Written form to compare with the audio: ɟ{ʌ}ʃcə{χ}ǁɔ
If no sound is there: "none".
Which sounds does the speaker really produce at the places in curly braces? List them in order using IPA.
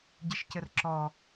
ə, r

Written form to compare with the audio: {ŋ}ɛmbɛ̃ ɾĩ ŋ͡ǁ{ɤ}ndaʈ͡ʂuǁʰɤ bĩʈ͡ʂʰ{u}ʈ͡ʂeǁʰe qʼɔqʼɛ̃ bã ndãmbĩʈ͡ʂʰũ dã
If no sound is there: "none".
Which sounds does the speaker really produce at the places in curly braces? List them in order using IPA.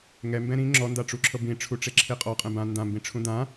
ŋ, ɔ, u

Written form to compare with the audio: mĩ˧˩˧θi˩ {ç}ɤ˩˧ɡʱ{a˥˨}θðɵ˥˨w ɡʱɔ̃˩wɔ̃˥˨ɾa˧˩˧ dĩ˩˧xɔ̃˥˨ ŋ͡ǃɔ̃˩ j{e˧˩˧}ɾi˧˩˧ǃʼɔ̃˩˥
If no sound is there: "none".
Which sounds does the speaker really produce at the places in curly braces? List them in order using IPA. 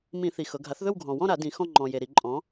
x, a˩˥, e˩

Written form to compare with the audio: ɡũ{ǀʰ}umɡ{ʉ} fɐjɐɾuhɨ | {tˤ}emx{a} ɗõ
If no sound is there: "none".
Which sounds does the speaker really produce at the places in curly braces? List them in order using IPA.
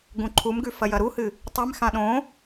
ǃʰ, ʉ, tˤ, ã

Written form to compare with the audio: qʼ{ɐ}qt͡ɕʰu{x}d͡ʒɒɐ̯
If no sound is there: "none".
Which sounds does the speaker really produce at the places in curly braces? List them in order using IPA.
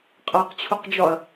a, q

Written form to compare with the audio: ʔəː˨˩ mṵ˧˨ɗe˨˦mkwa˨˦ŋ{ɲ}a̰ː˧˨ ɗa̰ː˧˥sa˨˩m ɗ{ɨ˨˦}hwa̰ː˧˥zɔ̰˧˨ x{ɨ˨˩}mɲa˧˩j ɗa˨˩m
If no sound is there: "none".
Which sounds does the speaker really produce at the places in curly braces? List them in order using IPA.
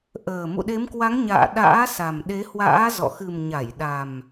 ɲ, e˨˦, ɨ˨˩

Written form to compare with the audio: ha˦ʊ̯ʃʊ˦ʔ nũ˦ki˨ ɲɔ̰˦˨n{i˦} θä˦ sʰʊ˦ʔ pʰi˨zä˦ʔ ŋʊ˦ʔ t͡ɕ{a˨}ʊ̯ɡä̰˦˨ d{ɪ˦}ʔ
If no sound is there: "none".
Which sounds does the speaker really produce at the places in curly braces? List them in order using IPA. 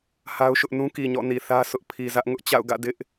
i˨, a̰˦˨, ɪ˦

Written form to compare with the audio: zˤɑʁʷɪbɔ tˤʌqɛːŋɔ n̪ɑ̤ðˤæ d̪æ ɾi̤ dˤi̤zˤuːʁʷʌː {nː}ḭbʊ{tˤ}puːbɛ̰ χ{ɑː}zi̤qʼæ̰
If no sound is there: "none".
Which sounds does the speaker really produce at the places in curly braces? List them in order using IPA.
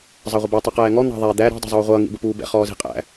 ŋ, none, ɔː

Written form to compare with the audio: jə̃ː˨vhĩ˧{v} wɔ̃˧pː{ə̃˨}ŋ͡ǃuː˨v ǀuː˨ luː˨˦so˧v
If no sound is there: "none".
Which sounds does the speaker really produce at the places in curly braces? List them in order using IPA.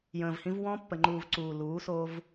v, ə˨

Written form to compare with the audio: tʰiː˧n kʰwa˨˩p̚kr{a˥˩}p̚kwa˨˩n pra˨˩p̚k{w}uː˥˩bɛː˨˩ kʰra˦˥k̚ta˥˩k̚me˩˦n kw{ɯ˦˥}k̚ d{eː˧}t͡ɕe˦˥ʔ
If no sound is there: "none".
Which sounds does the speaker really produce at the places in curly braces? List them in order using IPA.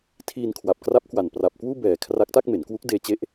a˦˥, w, u˦˥, eː˧

